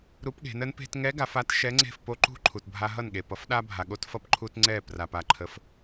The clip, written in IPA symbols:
ɾu˧˥pɠe̤˩˧nə˧˥n pe̤˧tŋɛ˧˥ɡa˩˧f a˧˥t ʃɛ˧˥ŋ͡ǀe̤˥˩f po˧˥ ǃṳ˧˥ ǃʰu˩tbʱa˧ɦʌ˥˩nɠe˩ pʌ˩˧fɗa˧bʱa˩ ɠo˧˥tfʌ˧pǃʰu˧t ŋ͡ǀɛ˧˩ pra˩pa˧˩ ǃʰə˩˧f

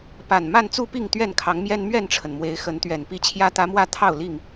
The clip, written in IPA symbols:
pa˨˩nma˥˨nt͡su˥˨pi˥˨ŋ t̪ɥɛ˥˨nkʰɑ˨˦ŋmjɛ˦n mɥɛ˥˨nʈ͡ʂʰə˩nmwe˨˦ɪ̯ xə˨˦nt̪ɥɛ˨˩n pi˦t͡ɕʰjä˦t̪ä˦ mwä˥˨t̪ʰɑ˥˨ʊ̯ li˥˨ŋ

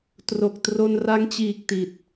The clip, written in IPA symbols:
tro˨˩k̚tro˧nra˦˥ŋt͡ɕiː˨˩k̚ ti˨˩t̚

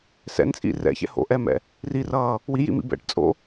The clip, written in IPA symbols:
sɛ̰nt͡sʼḭ rɛ̰çɛ̰ ho̰ʔɛmɛ̰ | rirʌː | wijḭmḭ bɛ̰ʈt͡sʼo̰

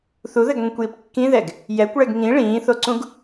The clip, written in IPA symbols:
θuðɘɡŋʷĩkʷjip kːĩðɛɡ | jɛkʷɭɛɡ ŋĩ ɭĩːθoǀũɡ

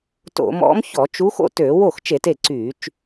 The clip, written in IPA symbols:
to̰˧˩˧mɔ̰˧˥mçɔ˧˩˧t͡ʃu˧˥ xo̰˥˩tøː˧˩˧ wo˥˩xt͡ʃe˧˩˧t e˥˩ǀyː˧˩˧t͡ʃ

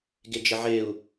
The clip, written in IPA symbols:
ɡed͡ʒɘʕeu̯

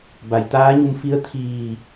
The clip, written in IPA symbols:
ba˩˧jt̪aː˧˥ɲu˧m fi˧˥ə̯t̪ʰiː˧˩

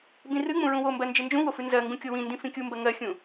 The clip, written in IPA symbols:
bĩrɨŋ͡mũ ɹũwombɜ nd͡ʒɨnd͡ʒũwo fɨnzɜŋɡũ kʲowĩndĩ fĩkʲumbɜ ŋɜxʲũ

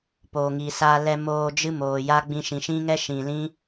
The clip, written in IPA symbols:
poː˨ŋi˨saː˧ lɛ˧moː˧d͡ʒɨ˦ moː˨ja˦ ɡ͡bĩ˧ʃĩ˨ʃĩ˦ŋɛ˦ ʃĩ˨lĩ˦

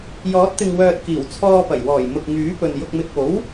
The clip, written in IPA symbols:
jɔː˨˥t̚ t̪ɪ˨ŋwœː˨t̚ kiː˨˩wt͡sʰɔː˧pɐ˨˩j wɔː˨˩jmʊ˨k̚ ŋyː˨˥pɵ˨n jʊ˨k̚mɪ˨k̚o˨˥w

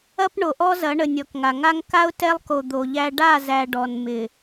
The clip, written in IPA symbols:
ɐ˦p ɳo˨ʔɔ˦zɐ˨˦ɳə˨ nʲɔ˨kŋa˨ŋa˦ŋ ka˦ʊ̯tɛ˦lˠko˨ d̪o˨ʎæ˦ ɖa˦˨zæ˨ ɖɔ˨nmɪ˨

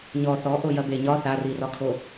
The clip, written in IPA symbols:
ɲɔ θɔ ʔojɐbeɲɒ θarirɒkʰo

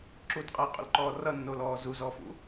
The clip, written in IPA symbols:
ǁutqʼʌjqʼṵlǃɔː rʌnːolɔː zuzɔfṵ

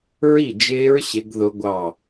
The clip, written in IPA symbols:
ɹi˥˨d͡ʒɪː˦˥ɹ ɕɪ˦˥ɡðʊ˦˥ɡʷɑ˥˨

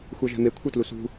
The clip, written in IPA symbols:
xʷɛʒɛ̤me kʷʰɯtlusṳ

